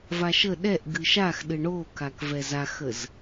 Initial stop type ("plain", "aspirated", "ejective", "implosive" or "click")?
implosive